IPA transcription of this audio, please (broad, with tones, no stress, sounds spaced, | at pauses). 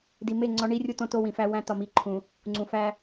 d i˨ m e˦˨ ŋ͡ǀ ɒ˦ ɳ i˦ rʲ u˦ t õ˦ t o˦ w ĩ˨ f æ˦ w æ̃˦ t ɒ˨ m i˨˦ ǃʰ ũ˨ | ŋ͡ǀ ũ˨ f æ˦